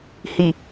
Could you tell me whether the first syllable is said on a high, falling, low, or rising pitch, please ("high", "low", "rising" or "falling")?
low